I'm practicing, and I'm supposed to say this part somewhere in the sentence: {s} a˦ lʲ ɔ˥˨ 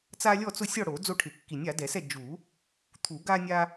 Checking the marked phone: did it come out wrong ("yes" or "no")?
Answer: yes